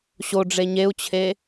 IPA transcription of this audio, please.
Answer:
ɕ o ɖ͡ʐ e ɲ e u̯ t͡ɕʰ e

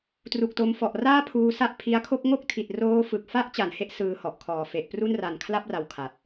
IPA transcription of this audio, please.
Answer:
t r u˨˩ k̚ t o˧ m f ɔ˨˩ ʔ r aː˥˩ pʰ uː˧ s a˦˥ ʔ pʰ i˧ a̯ kʰ o˥˩ k̚ ŋ o˥˩ k̚ tʰ i˨˩ t̚ r oː˦˥ f ɯ˨˩ k̚ f a˦˥ ʔ t͡ɕ a˩˦ n h e˦˥ ʔ s ɯː˧ h ɔ˨˩ ʔ kʰ ɔː˨˩ f e˨˩ ʔ p r u˥˩ n r a˨˩ n kʰ l a˥˩ p̚ r a˨˩ w kʰ a˨˩ t̚

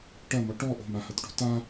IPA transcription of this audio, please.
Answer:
ʈ ɐ m ɔ ʈ ɔ ʔ o̤ m a h ɐ t ʈ o̤ t a

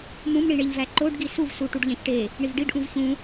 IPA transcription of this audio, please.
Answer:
m ũ m ɳ i ɳ e ʎ v æ ǃ o ɖ ɡ i s u v s u ʈ u ɖ ʎ æ̃ ç ʈ e | ɳ i v ɖ i ɖ ʔ ũ v ç ũ

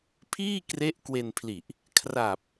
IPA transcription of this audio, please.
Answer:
pʰ iː˥˩ k r e˦˥ ʔ k w e˧ n pʰ l i˨˩ ʔ | kʰ r a˨˩ p̚

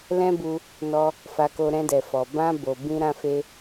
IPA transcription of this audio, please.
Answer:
l ɛ̃˦ b u˧ | n ɔ˧ | f a˧ k o˧ ɾ ɛ̃˧ d ɛ˨ f ɔ˨ b ã˧ b o˨ b ĩ˧ ɾ ã˧ f e˧

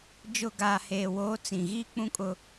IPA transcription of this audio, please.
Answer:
d͡ʒ ʊ˨ ɡ aː˨ h eː˨ w oː˨˦ t͡s ĩ˨ ɣ iː˦ k͡p ũ˦ kʼ ʊ˦

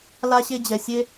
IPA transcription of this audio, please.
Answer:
l a˦ ɕ e˦ d͡ʑ ɛ˨ sʲ e˦

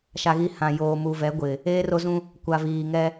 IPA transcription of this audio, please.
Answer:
ʃ a˨ ɣ i˨ h ã˨ j oː˨ m u˨ v ɛ˨˦ ɡʷ ɪ˨ | eː˦ r o˦ z ũ˦ | kʷ a˨ v iː˨ ŋ ɛ˦

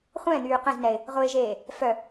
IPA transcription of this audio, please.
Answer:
χʷ ɛ̃ n̪ yː q ɛ̃ z n ɛ ɪ̯ | ʁ ʊ ɪ̯ ʒ eː | f œ

